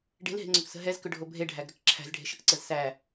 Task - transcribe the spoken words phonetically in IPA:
ɖ e̤ l ɦ e̤ ŋ͡ǀ ʏ k s ə̤ ɦ ɛ z k ʏ ɖʱ o bʱ e ɖʱ æ ɡ ɾ ʏ k ǁʰ æ̤ z ɖʱ e̤ ʃ ə k ǀ ə z s æ

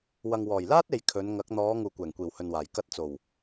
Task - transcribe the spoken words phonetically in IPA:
w ɐ˨ ŋ w ɔː˨˩ j l aː˥ t̚ e˨ j kʰ ɵ˨˧ n ŋ ɐ˨˥ k̚ n̪ ɔː˨˧ ŋ uː˨ kʷ ɛː˨˩ ŋ kʷ iː˨˩ w h ɵ˨ n w aː˨˩ j k ɐ˧ t̚ t͡s o˨˩ w

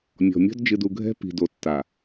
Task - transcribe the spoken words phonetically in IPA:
mʲ ɔ̤˨ mʲ ɔ̤˦ d d͡ʒ ɨ˨ d u˨ ɡʱ ɛ̤˦ p i̤˨ d o˨ tː a˨

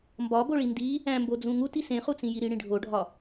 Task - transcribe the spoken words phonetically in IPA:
m b ɒ b o ɭ i n d i | æ̃ m b o d͡z ũ ŋ u t i s ẽ χ u t͡s ĩ j i ɾ i ɽ ĩ ɖʱ o ɖʱ ɒ

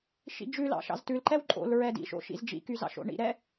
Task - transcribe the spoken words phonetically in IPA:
ʃ ḭ d͡ʒ ʉ l ɑ̰ ʃ ɑ̰ z t ʉ l ǃ ɛ w ǃʼ o̰ l ɹ ɛ d ḭ ʃ o̰ ʃ ḭ z d͡ʒ ḭ k y z ɑ̰ ʃ o̰ ɳ ḭ ɾ ɛ

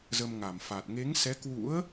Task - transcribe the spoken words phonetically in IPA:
z ə˧ m ŋ a˧˩ m f a˨˩ t̚ ŋ e˨˦ ŋ s ɛ˨˦ k w ṵ˧˥ ə̯

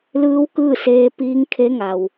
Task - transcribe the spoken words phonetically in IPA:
l ɯː˧˥ w k ɯː˥˨ s eː˧ p iː˧˥ ŋ kʰ e˧˥ ŋ a˩ w

